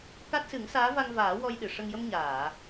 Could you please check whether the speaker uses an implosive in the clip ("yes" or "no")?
yes